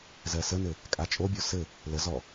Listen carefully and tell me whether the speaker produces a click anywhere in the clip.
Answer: no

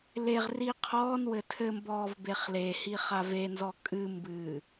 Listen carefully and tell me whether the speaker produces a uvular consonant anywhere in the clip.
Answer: yes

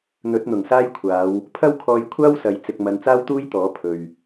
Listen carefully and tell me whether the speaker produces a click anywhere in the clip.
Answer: no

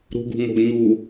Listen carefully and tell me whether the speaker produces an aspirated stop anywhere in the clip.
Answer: no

